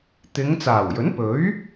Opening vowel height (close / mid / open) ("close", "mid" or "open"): close